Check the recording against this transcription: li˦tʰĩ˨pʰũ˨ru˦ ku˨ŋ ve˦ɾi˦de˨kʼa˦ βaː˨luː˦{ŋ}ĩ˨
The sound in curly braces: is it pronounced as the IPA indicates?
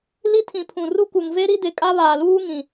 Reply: yes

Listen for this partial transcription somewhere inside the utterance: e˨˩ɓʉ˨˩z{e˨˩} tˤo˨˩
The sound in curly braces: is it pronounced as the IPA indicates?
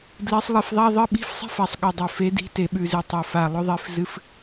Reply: no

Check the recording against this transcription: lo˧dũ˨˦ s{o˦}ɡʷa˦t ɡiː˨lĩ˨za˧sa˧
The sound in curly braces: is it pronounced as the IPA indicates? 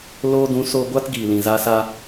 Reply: no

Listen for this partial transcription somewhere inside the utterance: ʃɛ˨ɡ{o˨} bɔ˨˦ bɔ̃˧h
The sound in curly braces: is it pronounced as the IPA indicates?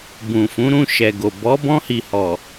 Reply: yes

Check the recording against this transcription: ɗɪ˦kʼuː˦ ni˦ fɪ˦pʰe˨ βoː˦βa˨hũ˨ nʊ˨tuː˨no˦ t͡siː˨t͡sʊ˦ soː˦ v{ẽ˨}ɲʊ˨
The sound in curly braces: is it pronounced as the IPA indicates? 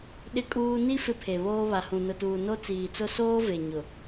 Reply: no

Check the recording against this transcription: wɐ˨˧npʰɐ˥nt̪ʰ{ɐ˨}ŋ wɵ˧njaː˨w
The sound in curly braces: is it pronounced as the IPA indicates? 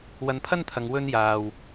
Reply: yes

